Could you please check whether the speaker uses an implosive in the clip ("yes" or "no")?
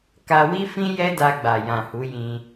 no